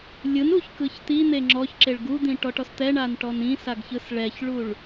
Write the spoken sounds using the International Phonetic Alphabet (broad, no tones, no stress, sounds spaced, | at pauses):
lʲ ɯ n u ç k ɯ ç t̪ i n̪ e ŋ͡ǁ ɔ ç ǁ e ɭ ɡ u d̪ ĩ ʈ ɔ ʈ ɔ s t̪ ɛ ɳ a n ʈ ɔ n ĩ s a ɡ ç ɯ s ɭ ɛ ç ɭ u ɭ